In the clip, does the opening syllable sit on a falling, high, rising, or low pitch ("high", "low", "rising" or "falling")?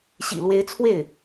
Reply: low